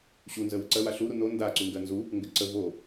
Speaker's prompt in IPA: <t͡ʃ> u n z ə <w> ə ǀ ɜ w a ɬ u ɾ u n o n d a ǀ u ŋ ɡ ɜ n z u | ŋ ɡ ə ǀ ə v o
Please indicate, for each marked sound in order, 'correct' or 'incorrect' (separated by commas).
incorrect, correct